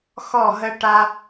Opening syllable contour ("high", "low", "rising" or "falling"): falling